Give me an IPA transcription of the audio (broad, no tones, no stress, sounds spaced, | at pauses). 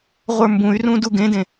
ʁʷ ə˞ m b ũ y̯ r ũ d u ɡ ẽ d ẽ